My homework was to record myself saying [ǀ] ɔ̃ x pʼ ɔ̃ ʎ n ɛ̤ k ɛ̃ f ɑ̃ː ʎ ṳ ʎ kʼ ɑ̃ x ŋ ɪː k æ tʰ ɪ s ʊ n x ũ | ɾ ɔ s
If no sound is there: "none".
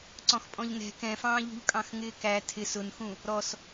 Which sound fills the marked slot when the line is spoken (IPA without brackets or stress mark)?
ǀ